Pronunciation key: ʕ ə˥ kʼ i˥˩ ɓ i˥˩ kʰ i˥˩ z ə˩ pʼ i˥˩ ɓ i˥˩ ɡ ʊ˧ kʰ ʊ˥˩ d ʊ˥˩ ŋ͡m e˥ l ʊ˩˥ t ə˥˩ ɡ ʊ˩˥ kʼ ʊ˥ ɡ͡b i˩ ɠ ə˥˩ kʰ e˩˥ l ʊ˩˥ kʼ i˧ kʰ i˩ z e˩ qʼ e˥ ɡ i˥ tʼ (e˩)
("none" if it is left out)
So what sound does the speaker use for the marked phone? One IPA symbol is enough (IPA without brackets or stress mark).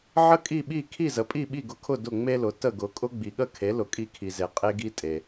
e˩